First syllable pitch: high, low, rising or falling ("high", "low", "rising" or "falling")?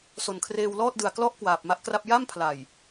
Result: low